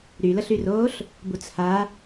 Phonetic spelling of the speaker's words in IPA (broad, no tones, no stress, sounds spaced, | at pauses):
ɾ y l ə ɬ y r oː ɬ | b u t͡s h a